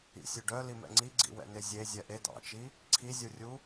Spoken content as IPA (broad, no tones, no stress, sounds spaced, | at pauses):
ḭ sʲ ø ɖ œ l i m ɛ̰ ŋ͡ǀ i ɡ͡ǀ ḭ w ɛ̰ n e zʲ e zʲ ɛ ʔ e d ɑ̰ t͡ʃ i | ǀʰ i zʲ u rʲ u